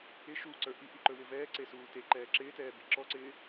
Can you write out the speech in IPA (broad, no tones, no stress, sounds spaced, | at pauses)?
ɪ ʃ u ǀ ə˞ ʔ i ʔ i ǃ ɵ w ɪ v ɛː ǀ e s uː t e ǃ ɛː ǁ ɪː t ɛː b i ǁ ɔ ǀ ɪː